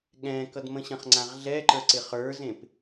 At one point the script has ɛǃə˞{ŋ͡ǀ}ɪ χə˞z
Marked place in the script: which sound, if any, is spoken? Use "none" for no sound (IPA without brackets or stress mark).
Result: ǀ